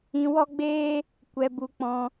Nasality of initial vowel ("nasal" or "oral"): nasal